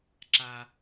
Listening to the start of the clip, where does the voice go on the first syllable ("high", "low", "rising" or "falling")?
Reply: low